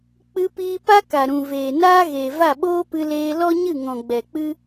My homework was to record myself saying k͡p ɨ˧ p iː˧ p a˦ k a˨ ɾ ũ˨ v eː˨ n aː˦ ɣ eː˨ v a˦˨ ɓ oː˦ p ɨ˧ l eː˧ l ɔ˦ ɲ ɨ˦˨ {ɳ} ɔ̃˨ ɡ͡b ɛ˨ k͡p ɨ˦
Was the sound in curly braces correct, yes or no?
no